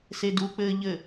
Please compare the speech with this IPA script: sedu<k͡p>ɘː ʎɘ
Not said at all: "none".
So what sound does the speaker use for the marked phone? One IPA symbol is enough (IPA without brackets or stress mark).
k͡p